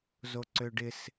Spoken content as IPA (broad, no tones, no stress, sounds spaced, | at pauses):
z o ǀ ø ɖ ɪ s